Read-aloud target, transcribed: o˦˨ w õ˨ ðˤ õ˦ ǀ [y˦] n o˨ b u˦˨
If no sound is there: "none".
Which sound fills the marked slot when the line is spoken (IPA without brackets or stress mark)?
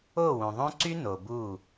y˦